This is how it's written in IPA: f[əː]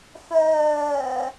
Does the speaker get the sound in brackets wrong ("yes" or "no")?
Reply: yes